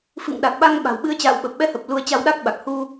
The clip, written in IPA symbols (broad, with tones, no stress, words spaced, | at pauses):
fɨ̰˧˨ŋɗa˨˩k̚ɓa˧ŋ ɓa̤˨˩wɓɨ˨˦ə̯t͡ɕa̰ː˧˨w ɓə˨˩p̚ɓɛ˧hə˨˩p̚ lu˧ə̯t͡ɕa˧wɗa˦˥k̚ɓa˨˩k̚ hu˧